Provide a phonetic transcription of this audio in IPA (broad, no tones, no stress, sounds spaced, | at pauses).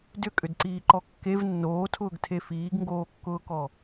d ʏ kʼ ʏ d ǀ iː ǃ ɔ kː e v nː oː tʰ ʊː ɡ tʰ e f iː ɡ ŋ ɡ oː kː ʊː k ɔ